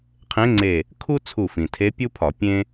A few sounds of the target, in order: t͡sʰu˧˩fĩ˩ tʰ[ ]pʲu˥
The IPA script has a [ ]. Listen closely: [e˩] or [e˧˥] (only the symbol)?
e˧˥